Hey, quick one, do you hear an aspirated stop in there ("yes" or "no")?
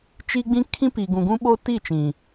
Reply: yes